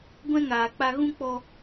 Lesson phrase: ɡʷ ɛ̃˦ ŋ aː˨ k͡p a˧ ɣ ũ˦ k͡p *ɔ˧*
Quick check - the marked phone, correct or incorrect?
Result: correct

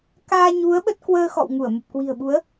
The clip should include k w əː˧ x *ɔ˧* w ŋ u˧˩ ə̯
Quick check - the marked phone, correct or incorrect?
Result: incorrect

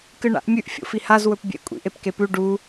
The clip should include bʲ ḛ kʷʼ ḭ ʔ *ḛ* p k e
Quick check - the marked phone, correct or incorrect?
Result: incorrect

